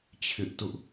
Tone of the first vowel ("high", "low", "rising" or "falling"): high